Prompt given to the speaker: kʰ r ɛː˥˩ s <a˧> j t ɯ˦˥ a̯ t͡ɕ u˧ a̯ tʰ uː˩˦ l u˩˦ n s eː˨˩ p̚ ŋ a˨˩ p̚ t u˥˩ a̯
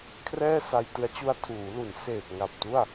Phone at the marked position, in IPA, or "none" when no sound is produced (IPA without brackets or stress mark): a˧